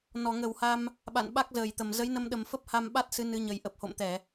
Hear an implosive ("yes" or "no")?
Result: yes